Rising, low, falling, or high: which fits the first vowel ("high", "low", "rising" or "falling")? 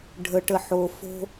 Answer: low